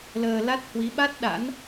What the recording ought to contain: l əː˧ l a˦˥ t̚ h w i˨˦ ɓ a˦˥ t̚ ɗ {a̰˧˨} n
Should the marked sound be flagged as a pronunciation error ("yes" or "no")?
yes